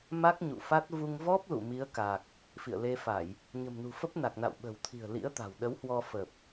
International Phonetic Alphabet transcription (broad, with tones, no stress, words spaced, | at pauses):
ma˦˥k̚ɲṵ˧˨fa˦˥t̚ vu˧ŋvɔ˦˥p̚lṵ˧˨ mi˨˦ə̯ka˨˩k̚ | fḭ˧˨ə̯le˧fa˧˩˨j | ɲə̤˨˩mnṳ˨˩fə˦˥p̚na˨˩k̚ na̰˧˨wɓə̤˨˩wt̪ʰi̤˨˩ə̯ lḭ˧˥ə̯t̪a̤˨˩wɗə˨˦whwɔ˧ fə˨˩p̚